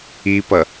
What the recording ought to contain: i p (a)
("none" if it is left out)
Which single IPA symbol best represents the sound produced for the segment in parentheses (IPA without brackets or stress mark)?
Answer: ʌ